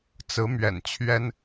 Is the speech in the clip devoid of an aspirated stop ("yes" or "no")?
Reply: no